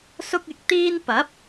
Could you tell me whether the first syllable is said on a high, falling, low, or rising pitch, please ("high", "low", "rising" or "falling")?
high